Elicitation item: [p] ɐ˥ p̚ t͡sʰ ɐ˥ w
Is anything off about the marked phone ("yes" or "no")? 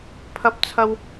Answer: yes